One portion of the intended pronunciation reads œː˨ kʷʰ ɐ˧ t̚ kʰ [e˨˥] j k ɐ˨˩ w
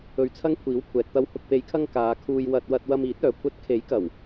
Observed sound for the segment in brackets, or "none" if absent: e˨˥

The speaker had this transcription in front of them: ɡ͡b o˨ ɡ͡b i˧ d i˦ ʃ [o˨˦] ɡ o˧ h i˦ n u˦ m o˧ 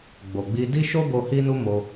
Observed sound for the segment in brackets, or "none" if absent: o˦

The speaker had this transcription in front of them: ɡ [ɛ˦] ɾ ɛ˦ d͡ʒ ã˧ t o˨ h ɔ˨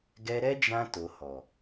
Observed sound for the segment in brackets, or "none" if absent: ɛ˧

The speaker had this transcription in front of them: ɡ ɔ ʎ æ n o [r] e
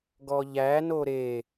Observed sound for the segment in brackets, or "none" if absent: ɾ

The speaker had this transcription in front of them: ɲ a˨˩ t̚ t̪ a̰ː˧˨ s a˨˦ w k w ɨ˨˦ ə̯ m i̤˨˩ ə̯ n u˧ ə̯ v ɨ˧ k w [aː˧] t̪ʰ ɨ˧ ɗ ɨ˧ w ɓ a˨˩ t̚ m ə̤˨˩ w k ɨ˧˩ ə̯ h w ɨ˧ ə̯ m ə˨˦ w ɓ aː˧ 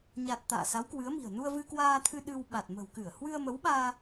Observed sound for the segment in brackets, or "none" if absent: aː˧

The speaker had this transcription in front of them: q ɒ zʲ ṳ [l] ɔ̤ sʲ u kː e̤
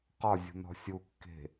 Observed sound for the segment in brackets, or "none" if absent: n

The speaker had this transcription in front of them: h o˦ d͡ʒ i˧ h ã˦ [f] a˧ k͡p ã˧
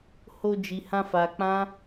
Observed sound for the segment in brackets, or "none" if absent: f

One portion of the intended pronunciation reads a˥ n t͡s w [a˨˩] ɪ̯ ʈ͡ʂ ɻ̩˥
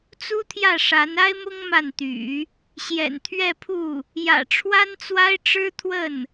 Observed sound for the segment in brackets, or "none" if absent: a˥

